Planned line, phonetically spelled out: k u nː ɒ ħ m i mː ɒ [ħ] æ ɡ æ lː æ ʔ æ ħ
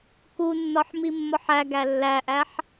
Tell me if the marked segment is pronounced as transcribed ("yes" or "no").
yes